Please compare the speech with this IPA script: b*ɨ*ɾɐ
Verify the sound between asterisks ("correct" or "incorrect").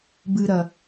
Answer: correct